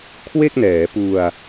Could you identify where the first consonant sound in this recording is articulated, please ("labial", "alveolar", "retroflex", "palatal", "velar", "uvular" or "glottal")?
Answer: velar